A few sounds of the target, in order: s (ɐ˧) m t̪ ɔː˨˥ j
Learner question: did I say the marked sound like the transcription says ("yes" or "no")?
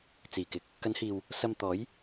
yes